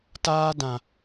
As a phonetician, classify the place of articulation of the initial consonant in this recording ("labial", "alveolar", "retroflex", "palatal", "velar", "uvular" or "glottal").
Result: alveolar